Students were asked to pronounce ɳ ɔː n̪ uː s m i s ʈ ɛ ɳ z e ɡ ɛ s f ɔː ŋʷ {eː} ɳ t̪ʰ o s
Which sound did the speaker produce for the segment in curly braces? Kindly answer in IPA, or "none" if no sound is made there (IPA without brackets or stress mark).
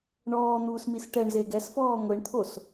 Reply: e